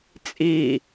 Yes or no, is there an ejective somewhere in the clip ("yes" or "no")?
yes